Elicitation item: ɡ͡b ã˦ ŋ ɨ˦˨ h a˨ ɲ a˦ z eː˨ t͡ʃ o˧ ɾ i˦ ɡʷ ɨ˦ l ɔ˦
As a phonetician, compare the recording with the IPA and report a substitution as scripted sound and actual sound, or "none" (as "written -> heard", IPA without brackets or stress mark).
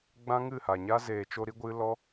none